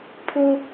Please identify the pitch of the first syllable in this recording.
high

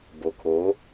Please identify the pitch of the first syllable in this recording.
low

